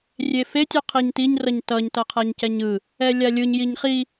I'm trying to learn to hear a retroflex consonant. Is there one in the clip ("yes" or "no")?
no